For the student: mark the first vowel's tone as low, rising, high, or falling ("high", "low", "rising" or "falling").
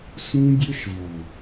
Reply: high